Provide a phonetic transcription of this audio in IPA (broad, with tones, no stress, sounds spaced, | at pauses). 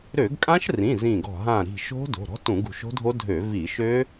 ɾ ø˧˩˧ ɡ kʼ ã˦˥ ʃ r ĩ˩˧˩ z ĩ˧˩ ɡ ɔ̤˧˩ ɦ ã˧˩ ɾ i̤˧˩ ʃ o̤˦˥ d o̤˩˧˩ ɾ ɔ̤˦˥ t ũ˧˩˧ ɡ ṳ˧˩ ʃ o̤˦˥ dʱ o˦˥ dʱ ø˧˩˧ v i˧˩˧ ʃ ø˦˥